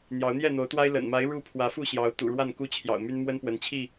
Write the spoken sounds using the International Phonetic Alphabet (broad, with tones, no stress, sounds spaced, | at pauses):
n̪ j ɑ˨˦ ʊ̯ n̪ j ɛ˥˨ n̪ o˨˦ ʊ̯ t̪ w a˦ ɪ̯ l ə̰˨˩ n m a˨˦ ɪ̯ ɻ u˥˨ pʰ w ä˨˦ f u˥˨ ɕ j ɑ˨˦ ʊ̯ t̪ ṵ˨˩ ɻ w a˥˨ n k u˦ t͡ɕʰ j ɑ̰˨˩ ʊ̯ m y˦ n m w ə˦ n p w ə˨˦ n t͡ɕʰ i˥˨